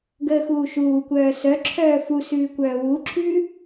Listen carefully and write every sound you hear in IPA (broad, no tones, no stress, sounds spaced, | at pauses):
ɡ əː x uː ʃ uː kʷ œː s œ ǁʰ œː f u s ʉː kʷ œː w u ǁʰ ʉ